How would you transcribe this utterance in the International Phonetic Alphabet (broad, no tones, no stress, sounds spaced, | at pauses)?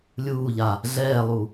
lʲ uː ʎ a | ɮ ɛː lˠ u